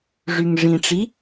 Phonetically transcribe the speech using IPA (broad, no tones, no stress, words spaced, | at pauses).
ʐyŋʐĩʈ͡ʂi